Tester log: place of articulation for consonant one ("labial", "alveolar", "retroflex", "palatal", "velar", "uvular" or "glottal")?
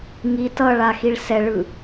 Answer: velar